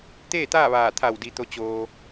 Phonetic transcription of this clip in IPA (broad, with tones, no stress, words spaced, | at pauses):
t̪eː˥˨t̪aː˥˨ ʋaː˧˩t̪ʰa˧˩w di˧t̪o˧˥ t͡ɕoː˧